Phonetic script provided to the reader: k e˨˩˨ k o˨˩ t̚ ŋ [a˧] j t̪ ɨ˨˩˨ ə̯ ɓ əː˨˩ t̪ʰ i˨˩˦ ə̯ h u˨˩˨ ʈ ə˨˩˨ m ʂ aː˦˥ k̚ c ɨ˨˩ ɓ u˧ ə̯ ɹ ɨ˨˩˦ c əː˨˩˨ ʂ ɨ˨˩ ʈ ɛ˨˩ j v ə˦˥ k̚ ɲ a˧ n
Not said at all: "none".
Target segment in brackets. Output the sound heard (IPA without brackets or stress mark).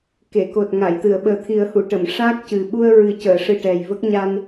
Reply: a˨˩˨